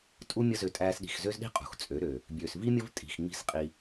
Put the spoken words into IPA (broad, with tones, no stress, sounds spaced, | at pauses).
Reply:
tʼ u˦ mʲ ə˦ z ø˧ tʼ æː˧ s ɗ i̤˨ x z ø˦ z ɗ i̤˦ qʼ ṳ˨ x t͡sʼ ø˨˦ ɾ ø˨ | bʲ øː˨ s v i˦ mʲ ə˦ v tʼ i̤˨ x ŋ͡m i̤˧ s qʼ i˧